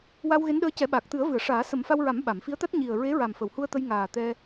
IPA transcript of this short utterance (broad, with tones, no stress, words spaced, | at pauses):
wa˧wɣe˧˥nɗəː˧˥cɛ˨˩˦ ɓaː˨˩k̚t̪ɨ˨˩˦ə̯vɨ˨˩˨ə̯ ʂaː˨˩˦sə˨˩˦m fa˧wɹa˨˩˦m ɓa˨˩˨mfi˧˥ə̯t̪a˦˥t̚ ɲi˨˩ə̯ɹe˧˥ɹa˨˩m fə˨˩˨whu˧ə̯t̪ə˧j ŋaː˨˩ t̪ɛ˧